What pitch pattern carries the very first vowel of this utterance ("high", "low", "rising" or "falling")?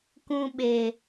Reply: low